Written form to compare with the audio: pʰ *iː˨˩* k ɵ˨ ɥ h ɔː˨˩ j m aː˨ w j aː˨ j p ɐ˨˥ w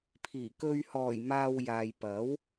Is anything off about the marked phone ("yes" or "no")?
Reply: no